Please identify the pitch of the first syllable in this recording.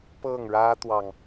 falling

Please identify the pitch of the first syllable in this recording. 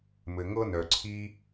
low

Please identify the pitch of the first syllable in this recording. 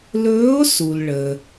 rising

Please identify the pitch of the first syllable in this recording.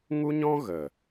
high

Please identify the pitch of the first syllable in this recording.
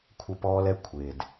high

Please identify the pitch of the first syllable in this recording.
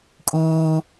high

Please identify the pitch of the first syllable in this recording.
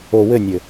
low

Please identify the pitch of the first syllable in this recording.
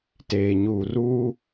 low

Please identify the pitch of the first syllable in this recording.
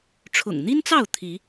low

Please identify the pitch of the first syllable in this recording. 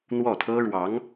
falling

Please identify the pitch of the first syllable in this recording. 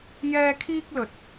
high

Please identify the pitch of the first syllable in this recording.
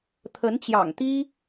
rising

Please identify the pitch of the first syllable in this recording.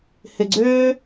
low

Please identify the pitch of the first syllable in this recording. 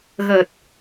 low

